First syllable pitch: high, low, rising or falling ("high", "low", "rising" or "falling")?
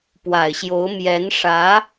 low